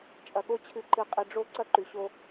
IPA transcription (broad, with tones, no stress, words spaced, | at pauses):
t͡ʃʼɐ˨ɠo˦ t͡ɕʰɨ˨ǃɨ˨qʼi˨ ɖ͡ʐo˦ ǀɐ˦ǃʉ˨ ɕo˦